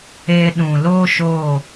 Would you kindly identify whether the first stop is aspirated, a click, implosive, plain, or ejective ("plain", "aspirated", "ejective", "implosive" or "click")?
implosive